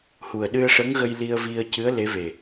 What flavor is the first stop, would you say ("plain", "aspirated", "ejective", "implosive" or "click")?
implosive